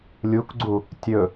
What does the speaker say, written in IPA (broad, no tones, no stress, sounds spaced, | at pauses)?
lʲ u k ɡ͡ǀ u | tʲ ɵ